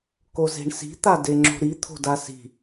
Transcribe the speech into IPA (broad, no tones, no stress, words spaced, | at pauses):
koze̤ɳsi̤ t̪adeŋ͡ǁo̤ɾi t̪ʰo̤dasi̤